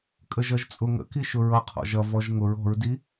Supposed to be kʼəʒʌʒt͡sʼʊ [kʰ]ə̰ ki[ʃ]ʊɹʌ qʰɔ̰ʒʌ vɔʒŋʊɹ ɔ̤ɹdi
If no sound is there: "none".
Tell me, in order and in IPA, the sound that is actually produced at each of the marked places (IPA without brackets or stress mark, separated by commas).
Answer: ŋ, ʃ